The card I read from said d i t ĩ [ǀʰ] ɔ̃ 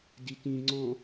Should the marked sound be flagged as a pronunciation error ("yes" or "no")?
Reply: yes